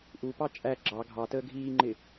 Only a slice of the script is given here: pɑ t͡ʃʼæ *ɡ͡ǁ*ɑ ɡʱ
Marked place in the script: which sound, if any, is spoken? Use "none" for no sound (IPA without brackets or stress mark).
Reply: ɡ͡ǁ